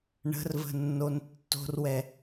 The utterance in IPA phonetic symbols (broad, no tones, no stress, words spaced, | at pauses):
ɳə̤rvə̤nːon tːo̤rwɛ